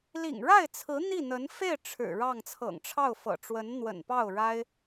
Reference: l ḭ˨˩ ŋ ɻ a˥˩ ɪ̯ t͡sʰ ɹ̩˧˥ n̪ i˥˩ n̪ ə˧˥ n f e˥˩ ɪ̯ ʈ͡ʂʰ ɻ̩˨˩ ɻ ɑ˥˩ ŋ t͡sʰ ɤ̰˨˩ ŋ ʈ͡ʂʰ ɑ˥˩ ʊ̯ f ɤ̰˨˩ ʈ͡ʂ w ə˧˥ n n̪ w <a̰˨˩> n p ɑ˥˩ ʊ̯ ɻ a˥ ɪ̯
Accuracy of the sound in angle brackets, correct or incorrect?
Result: incorrect